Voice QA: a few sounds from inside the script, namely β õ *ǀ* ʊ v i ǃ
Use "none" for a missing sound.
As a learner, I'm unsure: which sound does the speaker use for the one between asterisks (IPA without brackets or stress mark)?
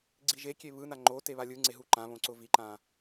ǀ